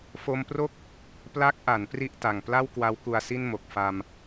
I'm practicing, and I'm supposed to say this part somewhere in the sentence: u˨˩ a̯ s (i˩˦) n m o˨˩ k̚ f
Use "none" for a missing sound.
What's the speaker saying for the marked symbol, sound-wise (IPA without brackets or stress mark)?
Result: i˥˩